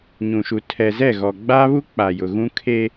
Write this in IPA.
ɲũ˨ʃu˨ tʰɛ˨zɛ˦˨ɣɔ˨ ɡ͡ba˦βu˦ k͡pa˨jʊ˨ɣũ˦ kʰe˦

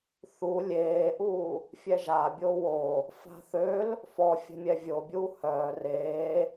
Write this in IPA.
θu lʲeːʔuː | fʲɛʒa bʲowo | fa̤θøl | fɔ fʲɛ̤mʲɛvʲobʲuː hœː reː

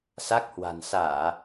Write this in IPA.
sa˦˥k̚hwa̤˨˩n saː˧˩˨

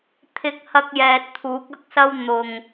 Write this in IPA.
t̪ʰɪ˧k̚hɐ˧k̚jɛː˨t̚ t̪ʰuː˨˥k̚ɐ˥k̚sɐ˥w n̪ʊ˨ŋ

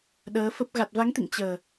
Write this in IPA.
ɗəː˨˦fə˦˥p̚ ɣa˨˩t̚va˨˦ŋt̪ḭ˧˨ŋ t͡ɕəː˨˩

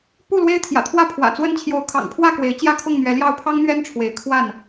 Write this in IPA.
pu˥˨ lwe˦ɪ̯t̪ʰjä̰˨˩t̪ʰwä˦ pʰwä̰˨˩t͡swə˦n t͡ɕʰjo˨˦ʊ̯ kʰɑ̰˨˩ŋpʰwä˥˨kwe˨˦ɪ̯ t͡ɕjä˦kʰʊ˥˨ŋn̪ɥɛ˨˦ljɑ˥˨ʊ̯ pʰɑ˦ŋn̪ɥɛ˦nʈ͡ʂʰwe˨˦ɪ̯ kʰwa˥˨n

